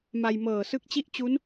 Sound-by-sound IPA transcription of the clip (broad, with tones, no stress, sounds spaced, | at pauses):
m a˧ j m ɤː˨˩ s ɯ˦˥ k̚ t͡ɕ i˥˩ ʔ t͡ɕ u˦˥ n